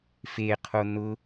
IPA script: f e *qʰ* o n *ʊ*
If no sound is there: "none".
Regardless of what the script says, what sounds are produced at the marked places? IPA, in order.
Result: qʰ, ʊ

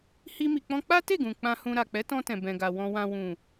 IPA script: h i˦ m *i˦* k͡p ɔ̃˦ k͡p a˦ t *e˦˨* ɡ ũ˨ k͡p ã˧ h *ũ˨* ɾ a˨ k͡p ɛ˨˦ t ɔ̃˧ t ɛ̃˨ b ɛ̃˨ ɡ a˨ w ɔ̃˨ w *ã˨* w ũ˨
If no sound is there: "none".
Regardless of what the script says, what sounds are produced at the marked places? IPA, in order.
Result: i˧, e˦˨, ũ˧, ã˨

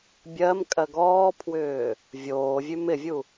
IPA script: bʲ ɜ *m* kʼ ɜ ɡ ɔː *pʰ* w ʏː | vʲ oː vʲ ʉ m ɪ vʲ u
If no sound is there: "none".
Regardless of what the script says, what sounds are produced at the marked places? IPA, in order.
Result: m, pʰ

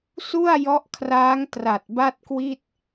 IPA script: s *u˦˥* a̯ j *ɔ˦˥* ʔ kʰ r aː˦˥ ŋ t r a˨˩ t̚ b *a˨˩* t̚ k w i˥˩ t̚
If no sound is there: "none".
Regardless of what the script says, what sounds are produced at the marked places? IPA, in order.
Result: u˥˩, ɔ˦˥, a˥˩

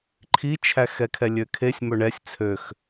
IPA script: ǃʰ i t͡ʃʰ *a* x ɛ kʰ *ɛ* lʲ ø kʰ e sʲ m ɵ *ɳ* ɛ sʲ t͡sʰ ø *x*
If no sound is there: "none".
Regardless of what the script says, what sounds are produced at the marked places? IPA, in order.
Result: æ, ɛ, ɳ, x

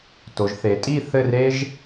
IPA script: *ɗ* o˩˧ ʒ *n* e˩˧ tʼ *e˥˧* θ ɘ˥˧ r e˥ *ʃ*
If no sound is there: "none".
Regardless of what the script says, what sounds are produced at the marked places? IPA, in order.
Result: t, θ, i˥˧, ʒ

